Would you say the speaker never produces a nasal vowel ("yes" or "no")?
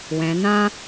no